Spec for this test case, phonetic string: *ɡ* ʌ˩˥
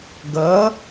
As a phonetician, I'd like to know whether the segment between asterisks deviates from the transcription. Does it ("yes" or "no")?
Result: no